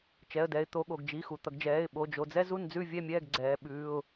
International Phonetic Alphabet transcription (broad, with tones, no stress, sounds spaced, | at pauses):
t͡ʃ ɛ˩˧˩ ə̯ d ɛ˩˧ ɪ̯ t̪ o˩˧ ɠ o˩ ɡ d͡ʒ i˩˧˩ x u˩ t̪ ʌ˩˧ ɡ d͡ʒ ɛː˩˧˩ ɪ̯ ɓ o˩˧˩ d͡ʒ o˩˧˩ d͡z ɛ˥ z u˥˨ n d͡z ʉ˥˨ vʲ ɛ˥˨ mʲ ɛː˥˨ ɡ ɡ͡ǀ ɛː˩˧ ɓ ʉː˩˧˩ ʊ̯